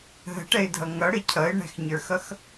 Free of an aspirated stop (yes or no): no